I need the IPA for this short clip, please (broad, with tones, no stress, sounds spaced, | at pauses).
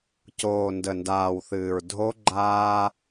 c oː˨ n d ə˨ n d aː˨ w θ ɨː˨ ɹ dʱ o˦ ɡ͡ǃ aː˦